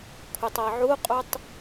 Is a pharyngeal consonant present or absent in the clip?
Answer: present